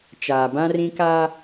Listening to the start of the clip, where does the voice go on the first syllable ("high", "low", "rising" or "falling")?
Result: low